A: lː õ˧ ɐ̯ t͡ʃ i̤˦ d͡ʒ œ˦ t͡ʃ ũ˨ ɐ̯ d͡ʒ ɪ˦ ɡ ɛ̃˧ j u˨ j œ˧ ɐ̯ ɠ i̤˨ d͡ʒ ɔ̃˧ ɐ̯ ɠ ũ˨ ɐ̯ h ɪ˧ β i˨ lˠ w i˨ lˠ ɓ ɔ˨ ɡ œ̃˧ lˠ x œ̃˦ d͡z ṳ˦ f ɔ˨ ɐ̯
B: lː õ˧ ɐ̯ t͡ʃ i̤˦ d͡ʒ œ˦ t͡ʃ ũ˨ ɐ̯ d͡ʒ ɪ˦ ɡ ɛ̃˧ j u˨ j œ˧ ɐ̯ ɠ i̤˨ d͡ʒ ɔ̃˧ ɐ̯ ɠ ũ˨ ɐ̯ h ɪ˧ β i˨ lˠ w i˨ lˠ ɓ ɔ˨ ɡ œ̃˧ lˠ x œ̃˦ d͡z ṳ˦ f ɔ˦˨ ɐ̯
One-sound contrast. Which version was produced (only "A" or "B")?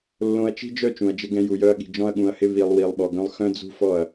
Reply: B